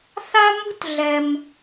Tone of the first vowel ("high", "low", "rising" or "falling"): high